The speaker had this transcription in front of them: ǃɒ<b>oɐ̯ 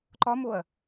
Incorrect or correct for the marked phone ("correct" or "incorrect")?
incorrect